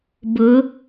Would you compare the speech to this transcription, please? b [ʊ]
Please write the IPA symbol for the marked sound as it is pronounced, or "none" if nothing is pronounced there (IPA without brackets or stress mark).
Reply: ʊ